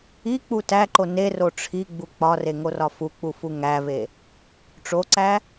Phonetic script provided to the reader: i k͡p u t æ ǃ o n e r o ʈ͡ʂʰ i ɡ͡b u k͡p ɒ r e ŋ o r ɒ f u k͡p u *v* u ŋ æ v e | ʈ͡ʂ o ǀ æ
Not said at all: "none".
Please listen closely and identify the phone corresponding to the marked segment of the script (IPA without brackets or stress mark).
f